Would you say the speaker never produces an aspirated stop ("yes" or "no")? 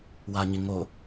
yes